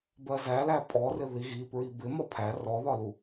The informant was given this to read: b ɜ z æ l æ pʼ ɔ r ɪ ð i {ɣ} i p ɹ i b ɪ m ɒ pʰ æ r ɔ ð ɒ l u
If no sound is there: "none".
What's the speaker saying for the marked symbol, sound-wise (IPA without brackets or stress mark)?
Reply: ɣ